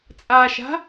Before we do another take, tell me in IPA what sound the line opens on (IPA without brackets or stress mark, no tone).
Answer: t͡sʼ